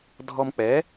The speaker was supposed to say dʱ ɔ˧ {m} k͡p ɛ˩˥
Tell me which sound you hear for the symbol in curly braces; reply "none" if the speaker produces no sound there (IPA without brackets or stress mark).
m